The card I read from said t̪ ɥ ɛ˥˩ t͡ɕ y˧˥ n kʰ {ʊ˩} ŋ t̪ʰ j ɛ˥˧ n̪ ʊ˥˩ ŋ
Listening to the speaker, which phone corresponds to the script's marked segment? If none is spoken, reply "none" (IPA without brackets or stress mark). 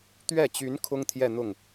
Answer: ʊ˥